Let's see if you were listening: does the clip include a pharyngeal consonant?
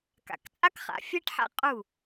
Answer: yes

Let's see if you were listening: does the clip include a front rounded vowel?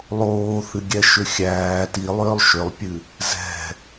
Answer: yes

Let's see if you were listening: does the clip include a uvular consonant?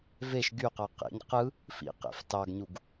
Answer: yes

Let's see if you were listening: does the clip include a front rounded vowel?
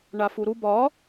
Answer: no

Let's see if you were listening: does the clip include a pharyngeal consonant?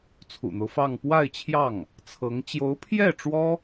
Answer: no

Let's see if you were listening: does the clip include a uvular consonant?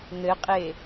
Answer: yes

